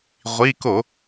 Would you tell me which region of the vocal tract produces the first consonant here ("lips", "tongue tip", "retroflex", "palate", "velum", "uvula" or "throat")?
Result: uvula